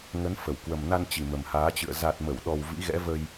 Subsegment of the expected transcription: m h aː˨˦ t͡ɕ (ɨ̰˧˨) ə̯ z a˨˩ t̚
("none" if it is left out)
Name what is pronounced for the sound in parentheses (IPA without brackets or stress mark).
ɨ̰˧˨